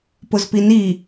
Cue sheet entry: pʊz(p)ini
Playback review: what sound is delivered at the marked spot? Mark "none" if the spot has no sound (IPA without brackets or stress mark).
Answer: p